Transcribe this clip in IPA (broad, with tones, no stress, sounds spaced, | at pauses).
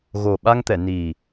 ɣ o˨˩ ɓ a˧ ŋ t̪ ɛ˨˩˨ n i˨˩